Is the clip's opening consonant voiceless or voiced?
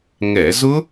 voiced